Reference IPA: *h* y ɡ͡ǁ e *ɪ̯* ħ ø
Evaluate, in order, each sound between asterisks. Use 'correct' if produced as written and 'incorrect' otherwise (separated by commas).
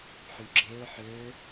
incorrect, incorrect